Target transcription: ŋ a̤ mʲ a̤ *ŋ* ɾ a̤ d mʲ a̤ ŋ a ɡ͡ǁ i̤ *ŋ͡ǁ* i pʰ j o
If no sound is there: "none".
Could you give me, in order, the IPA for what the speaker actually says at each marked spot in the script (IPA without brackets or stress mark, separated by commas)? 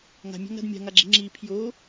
ŋ, ŋ͡ǁ